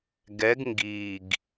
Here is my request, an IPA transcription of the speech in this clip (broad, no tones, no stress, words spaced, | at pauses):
ɡɛɡ ŋɡiɡ